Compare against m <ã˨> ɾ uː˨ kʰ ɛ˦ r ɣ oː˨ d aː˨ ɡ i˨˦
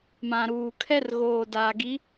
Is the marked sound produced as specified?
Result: yes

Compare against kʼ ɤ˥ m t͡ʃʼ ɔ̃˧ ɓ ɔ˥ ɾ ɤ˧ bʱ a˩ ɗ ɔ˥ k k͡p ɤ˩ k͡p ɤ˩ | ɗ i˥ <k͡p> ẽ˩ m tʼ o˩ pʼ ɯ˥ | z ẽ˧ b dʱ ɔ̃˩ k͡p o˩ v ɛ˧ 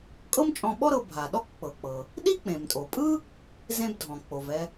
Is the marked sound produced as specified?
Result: yes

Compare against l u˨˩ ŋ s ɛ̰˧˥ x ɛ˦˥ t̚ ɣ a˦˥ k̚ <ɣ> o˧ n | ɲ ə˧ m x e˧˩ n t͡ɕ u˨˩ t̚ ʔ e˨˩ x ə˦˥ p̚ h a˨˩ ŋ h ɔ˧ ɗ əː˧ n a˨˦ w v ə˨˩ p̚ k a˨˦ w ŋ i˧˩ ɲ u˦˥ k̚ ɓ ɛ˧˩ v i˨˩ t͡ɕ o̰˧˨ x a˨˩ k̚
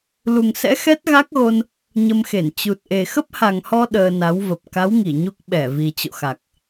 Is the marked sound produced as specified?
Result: yes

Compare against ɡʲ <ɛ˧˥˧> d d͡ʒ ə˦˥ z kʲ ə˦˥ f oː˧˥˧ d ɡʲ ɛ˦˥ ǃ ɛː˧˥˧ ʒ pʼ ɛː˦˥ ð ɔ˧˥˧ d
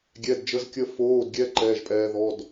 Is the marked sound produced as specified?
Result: yes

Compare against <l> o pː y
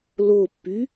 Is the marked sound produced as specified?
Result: yes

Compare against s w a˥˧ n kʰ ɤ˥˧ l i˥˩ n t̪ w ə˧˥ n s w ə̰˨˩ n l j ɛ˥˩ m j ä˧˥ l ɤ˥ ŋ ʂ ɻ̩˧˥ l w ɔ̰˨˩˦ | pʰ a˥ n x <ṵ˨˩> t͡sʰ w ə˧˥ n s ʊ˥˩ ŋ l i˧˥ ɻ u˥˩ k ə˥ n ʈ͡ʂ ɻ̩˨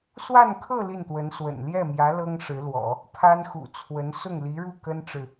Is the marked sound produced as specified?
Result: yes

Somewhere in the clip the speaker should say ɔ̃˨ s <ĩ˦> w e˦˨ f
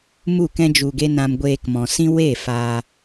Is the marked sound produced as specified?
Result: yes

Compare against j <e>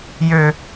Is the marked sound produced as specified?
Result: no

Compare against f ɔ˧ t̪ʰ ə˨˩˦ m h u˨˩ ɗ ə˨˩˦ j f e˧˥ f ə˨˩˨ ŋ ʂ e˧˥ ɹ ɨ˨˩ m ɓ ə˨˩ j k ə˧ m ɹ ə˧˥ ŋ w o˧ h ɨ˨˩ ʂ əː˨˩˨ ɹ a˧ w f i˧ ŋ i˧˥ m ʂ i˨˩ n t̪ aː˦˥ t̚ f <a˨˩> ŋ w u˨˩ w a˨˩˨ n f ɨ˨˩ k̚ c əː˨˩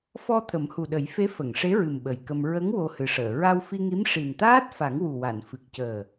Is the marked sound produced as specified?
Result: no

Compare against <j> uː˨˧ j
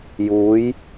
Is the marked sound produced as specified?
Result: yes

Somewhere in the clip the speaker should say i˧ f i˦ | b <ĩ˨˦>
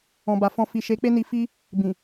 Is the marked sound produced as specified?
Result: no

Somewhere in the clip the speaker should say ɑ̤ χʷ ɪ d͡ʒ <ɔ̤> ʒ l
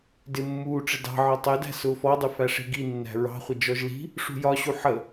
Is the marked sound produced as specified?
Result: no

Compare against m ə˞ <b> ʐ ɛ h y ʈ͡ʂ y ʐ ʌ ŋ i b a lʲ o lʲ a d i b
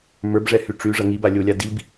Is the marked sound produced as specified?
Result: yes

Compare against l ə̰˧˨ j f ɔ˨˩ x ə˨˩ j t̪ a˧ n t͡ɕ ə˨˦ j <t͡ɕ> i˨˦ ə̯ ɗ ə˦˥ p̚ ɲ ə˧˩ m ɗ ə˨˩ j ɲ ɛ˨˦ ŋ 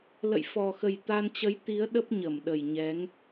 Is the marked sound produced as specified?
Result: no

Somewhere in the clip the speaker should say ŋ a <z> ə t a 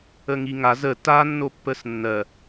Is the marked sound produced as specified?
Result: yes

